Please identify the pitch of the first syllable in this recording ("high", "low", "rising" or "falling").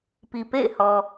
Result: low